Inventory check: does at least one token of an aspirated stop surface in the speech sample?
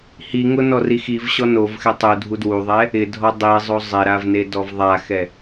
no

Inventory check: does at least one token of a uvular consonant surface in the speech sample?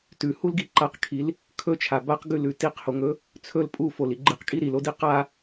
yes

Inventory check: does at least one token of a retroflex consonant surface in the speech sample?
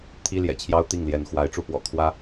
yes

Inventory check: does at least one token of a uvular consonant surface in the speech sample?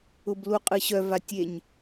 yes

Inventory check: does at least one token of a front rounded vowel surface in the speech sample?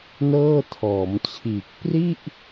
no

